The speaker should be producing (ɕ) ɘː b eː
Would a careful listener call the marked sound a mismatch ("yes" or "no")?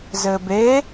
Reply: yes